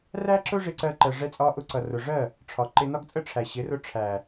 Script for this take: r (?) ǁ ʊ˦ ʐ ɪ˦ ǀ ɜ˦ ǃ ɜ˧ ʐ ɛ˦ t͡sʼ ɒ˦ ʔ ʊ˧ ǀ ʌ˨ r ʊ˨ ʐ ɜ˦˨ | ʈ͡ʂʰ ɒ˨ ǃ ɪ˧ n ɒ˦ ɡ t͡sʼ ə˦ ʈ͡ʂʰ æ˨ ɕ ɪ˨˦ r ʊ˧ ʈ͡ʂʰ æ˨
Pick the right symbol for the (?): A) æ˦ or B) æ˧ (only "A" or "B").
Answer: A